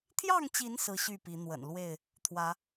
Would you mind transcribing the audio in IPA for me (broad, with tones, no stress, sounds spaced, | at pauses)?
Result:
t̪ʰ j ɑ˥˨ ŋ t͡ɕ i˨˦ n s ɹ̩˦ ɕ y˥˨ p i˨˦ n̪ w ə̰˨˩ n l w e˥˨ ɪ̯ | t̪ʰ w ä˨˦